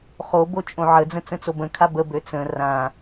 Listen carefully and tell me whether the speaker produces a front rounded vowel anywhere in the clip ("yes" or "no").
yes